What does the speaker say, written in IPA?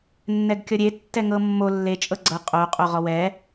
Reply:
nː ɛ ɡ kʲ ɔ ɾʲ e tː ɛ ŋ ɤ mː o lː e t͡ʃʼ ɤ ɡ͡ǀ ɤ qʼ o qʼ o ʁ ɔ w ɛ

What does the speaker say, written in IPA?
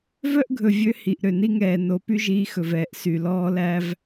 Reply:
v œ˦ ʔ ɡʱ ɵ˨ vʲ ø˦ h i˨ ʔ ɾ ø˨ n i˦ ŋ ɛː˨ n o˨˦ p y˦ ʒ iː˦ x ɵ˨ v ɛː˨ ʔ s y˨ l ɔː˦ l æ˦ v

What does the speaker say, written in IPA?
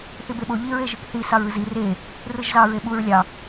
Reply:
θ i b e ɓ o ʎ i ɹ e ʒ ɯ k θ i s ɑ ɹ ɯ z i r e | r ɯ ʒ z ɑ ɹ e ɓ u ɹ lʲ ɑ

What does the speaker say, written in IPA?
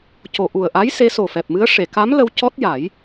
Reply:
c o˨˩ ʔ u˨˩ ə̯ ʔ a˧˥ j s e˧˥ s o˨˩ f ɛ˨˩ p̚ m ɨ˧˥ ə̯ ʂ e˨˩˨ k a˧˥ m l ə˧ w c ɔ˦˥ t̚ j a˨˩˦ j

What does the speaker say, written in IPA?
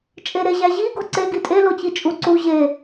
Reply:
t͡ʃʼ e ɾ e ʑ æ ʑ i ɡ o ǀ e ɡ i tʼ e l o t͡ɕ i t͡ʃʼ u ǀ u ʑ e

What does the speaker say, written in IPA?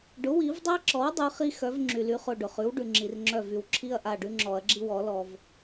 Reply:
ɖ ʊ˩˥ w i˨˩˦ v dˤ a˥ ǁ ɔ˩˥ w dˤ ʉ˩˥ χ i˥ x œ˩˥ v ŋ͡ǁ y˩ l y˩˥ χ ʊ˩˧˩ ɖ ʊ˩ χ ʉ˩˥ w ɖ ʉ˩ ŋ͡ǁ i˩ r ŋ͡ǁ œ˧˩ v y˩ w ǁʰ i˥ ɐ̯ ʔ a˩˧˩ ɖ ʉ˥ ŋ͡ǁ ɔ˨˩˦ ɐ̯ ɡ͡ǁ i˥ w ɔ˨˩˦ l ɔ˩ v

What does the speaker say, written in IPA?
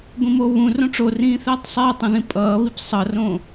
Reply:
ɡʷ ĩ m o β ũ r õ ʈ͡ʂ o r ĩː θ ɛː tˤ sˤ ɛː tˤ ũ ð ĩ pʼ ʌː β i p sˤ ʌ r õ

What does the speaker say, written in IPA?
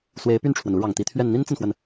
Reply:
s w e˧˥ ɪ̯ p y˥˩ n ʈ͡ʂʰ w ə˩ n u˧˥ ɻ ɑ˨˩ ŋ t̪ i˧˥ t̪ʰ ɥ ɛ˥˩ n n̪ i˥ n t͡s ə˨ n x w ə˩ n

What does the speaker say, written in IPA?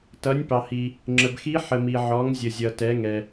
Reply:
t ʌ˩˧ nʲ p ɑ˩ h i˩ | ŋ͡ǁ ə˩ b x i˧˥ ħ ə˩ m i˩ ʕ ɔ˩˧ ŋ zʲ ə˩ zʲ ʌ˩ t ɛ˩˧ ŋ ɛ˩

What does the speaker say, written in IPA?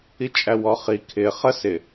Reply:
i t͡ʃʼ æ w ɔ χ i kʰ ɪ χ ə s ɪ

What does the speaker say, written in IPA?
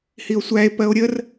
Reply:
h i o̯ sʷ æ e̯ p ɜ o̯ ɾʲ ə r

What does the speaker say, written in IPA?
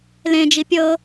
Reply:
l ẽ d͡ʒ i pʲ ɤ

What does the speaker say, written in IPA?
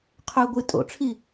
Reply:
qʰ ɵ ɡʷ ɨ tʼ o̰ ʈ͡ʂʰ i

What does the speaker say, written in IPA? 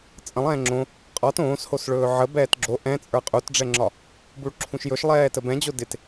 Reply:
t͡sʼ ə̃ lˠ ɛ̃ː ŋ͡ǁ õ | qʼ ɒ t õː s h o s ɭ ɵː ʕ ə b ɛː t ɡ͡ǁ o ʔ ɛ̃ t͡sʼ ə˞ qʼ u t ɖ͡ʐ ɛ ŋ͡ǁ ɒ | b u ɭ ǁʰ ũ ʃ j ɵ ʃ lˠ ɛː t ə b ɛ̃ d͡ʑ o d ɪ t

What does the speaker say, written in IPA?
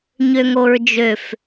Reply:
ɲ ø ŋ o ɹ d͡ʒ ø f

